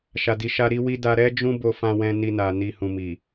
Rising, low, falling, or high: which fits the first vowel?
low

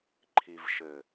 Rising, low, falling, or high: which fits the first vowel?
low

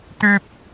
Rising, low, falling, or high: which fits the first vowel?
high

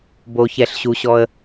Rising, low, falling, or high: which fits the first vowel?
low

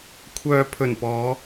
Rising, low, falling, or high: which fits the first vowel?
low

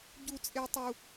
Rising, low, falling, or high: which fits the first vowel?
high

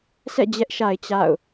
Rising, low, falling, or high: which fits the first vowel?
falling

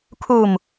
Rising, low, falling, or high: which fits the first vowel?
low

